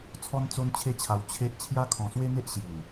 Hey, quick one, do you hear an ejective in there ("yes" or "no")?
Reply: no